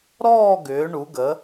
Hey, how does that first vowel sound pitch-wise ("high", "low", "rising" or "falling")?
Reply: falling